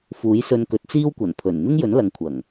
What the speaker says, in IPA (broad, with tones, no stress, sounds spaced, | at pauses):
f uː˨˥ j s ɵ˧ n k ɵ˨˥ t̚ t͡s iː˥ w kʷ ɐ˨˩ n pʰ ɵ˨˩ n n̪ ɪ˥ ŋ j ɵ˨˥ n l ɐ˨ ŋ kʷʰ ɐ˨˩ ŋ